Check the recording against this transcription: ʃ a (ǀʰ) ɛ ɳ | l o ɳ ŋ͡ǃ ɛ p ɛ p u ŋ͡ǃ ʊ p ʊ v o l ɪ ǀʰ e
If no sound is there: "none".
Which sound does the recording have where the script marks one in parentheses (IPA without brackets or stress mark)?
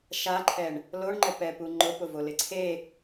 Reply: ǃʰ